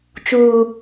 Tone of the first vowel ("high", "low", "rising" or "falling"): low